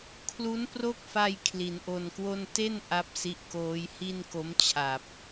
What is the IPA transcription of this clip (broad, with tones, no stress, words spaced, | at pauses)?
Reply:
kʰlu˦˥npro˥˩k̚fa˧j kʰli˩˦nʔo˧nkwo˥˩n te˥˩n ʔa˥˩p̚si˦˥ʔkoː˦˥j hi˥˩nko˦˥mt͡ɕʰa˨˩p̚